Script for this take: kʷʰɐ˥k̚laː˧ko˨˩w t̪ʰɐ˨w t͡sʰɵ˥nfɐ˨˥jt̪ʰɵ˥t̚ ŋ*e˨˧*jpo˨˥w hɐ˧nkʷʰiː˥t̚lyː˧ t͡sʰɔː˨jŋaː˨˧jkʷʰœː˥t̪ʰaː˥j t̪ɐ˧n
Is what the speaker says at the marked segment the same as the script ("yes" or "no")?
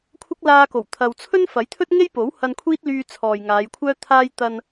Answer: no